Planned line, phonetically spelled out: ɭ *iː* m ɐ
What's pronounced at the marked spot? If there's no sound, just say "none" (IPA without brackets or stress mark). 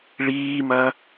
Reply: iː